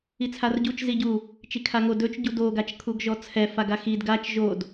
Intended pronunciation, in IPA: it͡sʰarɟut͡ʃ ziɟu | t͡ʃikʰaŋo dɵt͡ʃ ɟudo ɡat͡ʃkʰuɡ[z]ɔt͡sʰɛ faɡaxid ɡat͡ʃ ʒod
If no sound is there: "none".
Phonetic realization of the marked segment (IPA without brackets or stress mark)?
ʒ